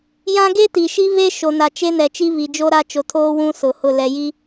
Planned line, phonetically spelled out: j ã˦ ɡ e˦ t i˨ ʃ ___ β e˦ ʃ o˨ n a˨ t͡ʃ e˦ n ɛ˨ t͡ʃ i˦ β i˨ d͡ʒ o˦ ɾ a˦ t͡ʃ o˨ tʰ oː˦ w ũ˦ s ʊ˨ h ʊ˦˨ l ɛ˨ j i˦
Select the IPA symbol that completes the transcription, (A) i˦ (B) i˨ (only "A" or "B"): A